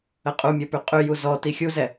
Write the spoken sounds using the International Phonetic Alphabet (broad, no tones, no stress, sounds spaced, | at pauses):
ə qʼ u mʲ ɔ p y qʼ y j u z ɔ t i xʲ u z ɛ